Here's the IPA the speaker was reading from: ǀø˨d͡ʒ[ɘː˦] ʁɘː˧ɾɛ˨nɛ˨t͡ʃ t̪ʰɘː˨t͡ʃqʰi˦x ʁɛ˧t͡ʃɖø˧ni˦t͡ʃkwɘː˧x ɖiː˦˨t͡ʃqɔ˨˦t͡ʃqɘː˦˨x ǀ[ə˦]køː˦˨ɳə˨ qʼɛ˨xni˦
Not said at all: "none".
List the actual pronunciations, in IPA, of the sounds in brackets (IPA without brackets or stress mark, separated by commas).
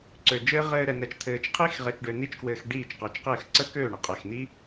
ɘː˦, ə˦